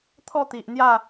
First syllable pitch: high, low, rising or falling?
falling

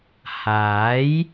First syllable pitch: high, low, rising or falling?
rising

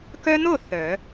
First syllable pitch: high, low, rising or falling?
high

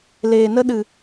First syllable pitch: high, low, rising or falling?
low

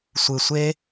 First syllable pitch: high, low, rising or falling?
low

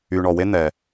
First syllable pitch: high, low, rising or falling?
low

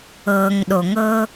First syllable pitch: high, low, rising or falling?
low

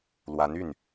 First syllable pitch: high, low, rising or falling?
rising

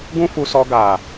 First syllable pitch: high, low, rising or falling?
high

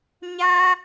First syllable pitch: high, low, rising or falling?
high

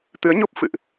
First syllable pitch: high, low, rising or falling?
rising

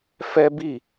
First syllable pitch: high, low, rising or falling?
high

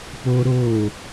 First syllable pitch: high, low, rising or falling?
high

